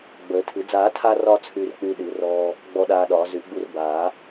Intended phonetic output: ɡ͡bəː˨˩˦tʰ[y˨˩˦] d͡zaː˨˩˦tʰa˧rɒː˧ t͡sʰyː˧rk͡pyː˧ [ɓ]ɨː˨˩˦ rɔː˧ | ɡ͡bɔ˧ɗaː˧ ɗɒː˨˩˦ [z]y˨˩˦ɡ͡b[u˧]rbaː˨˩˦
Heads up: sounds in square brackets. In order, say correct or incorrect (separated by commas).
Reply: incorrect, incorrect, correct, correct